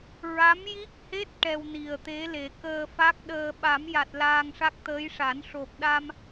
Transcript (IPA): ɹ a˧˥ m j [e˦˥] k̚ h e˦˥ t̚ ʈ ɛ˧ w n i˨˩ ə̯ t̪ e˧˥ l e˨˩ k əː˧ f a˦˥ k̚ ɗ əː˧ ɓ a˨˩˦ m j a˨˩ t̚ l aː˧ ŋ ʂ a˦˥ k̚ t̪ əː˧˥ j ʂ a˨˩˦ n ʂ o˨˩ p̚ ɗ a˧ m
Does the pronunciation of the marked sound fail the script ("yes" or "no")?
yes